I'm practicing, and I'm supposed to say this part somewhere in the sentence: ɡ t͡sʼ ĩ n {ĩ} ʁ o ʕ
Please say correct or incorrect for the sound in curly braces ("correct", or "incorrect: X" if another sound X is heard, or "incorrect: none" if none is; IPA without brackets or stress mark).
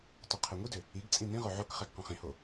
correct